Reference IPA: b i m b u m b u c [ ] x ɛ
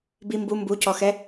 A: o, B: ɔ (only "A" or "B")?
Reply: B